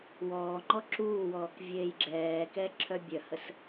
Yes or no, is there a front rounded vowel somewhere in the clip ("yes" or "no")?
yes